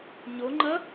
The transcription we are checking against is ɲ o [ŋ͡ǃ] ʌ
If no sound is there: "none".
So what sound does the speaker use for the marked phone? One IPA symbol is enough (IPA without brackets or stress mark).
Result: ŋ͡ǃ